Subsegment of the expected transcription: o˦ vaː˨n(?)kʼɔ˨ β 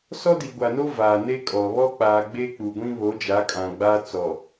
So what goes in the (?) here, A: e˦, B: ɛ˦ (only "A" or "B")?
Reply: A